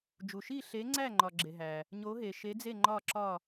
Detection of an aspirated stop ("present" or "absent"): absent